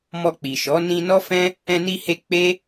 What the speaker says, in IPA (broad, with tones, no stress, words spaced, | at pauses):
mɔ˧k͡pi˨ʃɔ˨˦ nĩ˧nɔ˦fɛ̃˦ | ɛ̃˧ni˧he˧ k͡pe˦